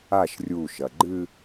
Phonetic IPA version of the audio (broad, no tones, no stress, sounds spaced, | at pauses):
a ʃ rʲ u ʃ ɐ ɡ͡ǃ ɨ